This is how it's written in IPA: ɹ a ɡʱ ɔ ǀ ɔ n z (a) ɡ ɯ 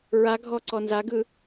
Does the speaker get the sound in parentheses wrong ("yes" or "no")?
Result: no